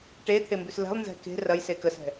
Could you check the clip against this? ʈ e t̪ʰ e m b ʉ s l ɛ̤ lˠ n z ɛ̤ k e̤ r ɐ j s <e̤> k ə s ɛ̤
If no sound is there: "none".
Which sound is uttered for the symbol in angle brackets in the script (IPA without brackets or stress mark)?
e